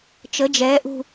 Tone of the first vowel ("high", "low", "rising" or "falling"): rising